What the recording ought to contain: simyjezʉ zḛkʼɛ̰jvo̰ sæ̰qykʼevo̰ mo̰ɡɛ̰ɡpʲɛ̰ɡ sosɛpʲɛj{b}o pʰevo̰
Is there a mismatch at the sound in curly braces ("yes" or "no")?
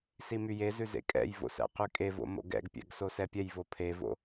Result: yes